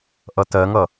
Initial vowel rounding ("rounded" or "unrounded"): unrounded